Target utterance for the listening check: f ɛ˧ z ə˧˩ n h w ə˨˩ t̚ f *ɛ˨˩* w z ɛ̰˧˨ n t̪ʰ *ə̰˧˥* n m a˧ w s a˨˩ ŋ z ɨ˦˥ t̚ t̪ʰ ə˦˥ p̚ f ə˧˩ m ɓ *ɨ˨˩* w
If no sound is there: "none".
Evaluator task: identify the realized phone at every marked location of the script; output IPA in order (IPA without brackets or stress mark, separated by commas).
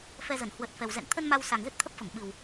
ɛ˨˩, ə˧, ɨ˨˩